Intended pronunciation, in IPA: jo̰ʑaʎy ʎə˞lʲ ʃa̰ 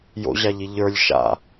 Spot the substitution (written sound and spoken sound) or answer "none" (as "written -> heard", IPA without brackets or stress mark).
y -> i